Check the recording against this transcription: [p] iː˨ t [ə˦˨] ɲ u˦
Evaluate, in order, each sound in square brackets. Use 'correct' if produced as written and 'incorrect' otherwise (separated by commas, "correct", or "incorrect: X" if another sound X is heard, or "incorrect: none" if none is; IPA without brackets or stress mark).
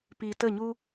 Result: correct, correct